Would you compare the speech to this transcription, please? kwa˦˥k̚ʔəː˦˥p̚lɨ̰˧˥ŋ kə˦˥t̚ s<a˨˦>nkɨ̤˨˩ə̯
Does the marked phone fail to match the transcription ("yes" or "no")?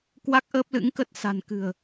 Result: yes